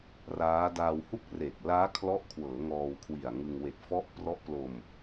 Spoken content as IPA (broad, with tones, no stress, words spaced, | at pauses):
raː˦˥ daː˧whu˥˩k̚re˨˩k̚ laː˦˥kʰlɔ˦˥ʔkʰwɤː˩˦ ŋɔː˧wkʰwi˨˩a̯ŋɯ˧ŋ we˨˩k̚ fɔ˦˥ʔ prɔ˦˥ʔ plo˧m